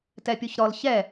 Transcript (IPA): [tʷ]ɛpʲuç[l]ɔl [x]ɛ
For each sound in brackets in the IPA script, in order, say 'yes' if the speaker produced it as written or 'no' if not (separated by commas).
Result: no, no, no